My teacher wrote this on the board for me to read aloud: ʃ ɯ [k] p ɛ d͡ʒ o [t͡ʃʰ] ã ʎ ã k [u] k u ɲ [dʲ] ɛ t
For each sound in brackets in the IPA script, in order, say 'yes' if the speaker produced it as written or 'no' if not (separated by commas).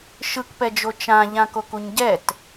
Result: yes, no, no, no